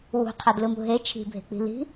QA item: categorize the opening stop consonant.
aspirated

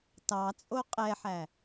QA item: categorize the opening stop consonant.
plain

